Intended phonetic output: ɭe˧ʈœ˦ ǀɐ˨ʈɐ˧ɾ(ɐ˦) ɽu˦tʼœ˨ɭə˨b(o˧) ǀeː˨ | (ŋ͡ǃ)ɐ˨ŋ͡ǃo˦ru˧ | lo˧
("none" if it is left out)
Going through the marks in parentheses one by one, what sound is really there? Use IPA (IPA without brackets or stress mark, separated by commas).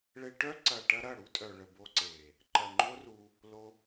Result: ɐ˦˨, o˧, ǃ